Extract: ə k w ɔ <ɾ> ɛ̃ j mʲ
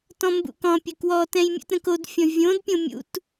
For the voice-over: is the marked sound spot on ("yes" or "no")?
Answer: no